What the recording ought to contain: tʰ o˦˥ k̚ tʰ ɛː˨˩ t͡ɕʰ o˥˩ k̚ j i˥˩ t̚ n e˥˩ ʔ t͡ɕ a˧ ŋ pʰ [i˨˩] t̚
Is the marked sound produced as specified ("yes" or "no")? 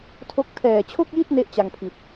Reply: yes